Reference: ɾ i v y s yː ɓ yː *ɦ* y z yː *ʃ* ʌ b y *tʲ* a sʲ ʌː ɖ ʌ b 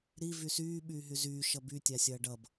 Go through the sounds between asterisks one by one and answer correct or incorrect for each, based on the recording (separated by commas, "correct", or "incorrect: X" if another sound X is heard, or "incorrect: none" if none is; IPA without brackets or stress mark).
correct, correct, correct